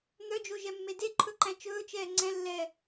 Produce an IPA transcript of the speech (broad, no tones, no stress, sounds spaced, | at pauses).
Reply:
n̪ œ d͡ʒ o ʒ ɛ mː e d e ǃʰ ɵ ǃ æ̃ t͡ʃ ɵː t͡ʃ ɛː ŋ͡ǀ ɛ̃ lː ɛː